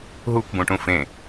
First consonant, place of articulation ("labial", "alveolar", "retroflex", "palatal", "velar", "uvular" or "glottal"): glottal